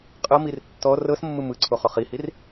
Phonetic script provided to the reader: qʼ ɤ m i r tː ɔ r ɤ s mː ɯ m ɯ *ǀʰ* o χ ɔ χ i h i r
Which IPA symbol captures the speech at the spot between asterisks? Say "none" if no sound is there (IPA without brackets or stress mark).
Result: ǀʰ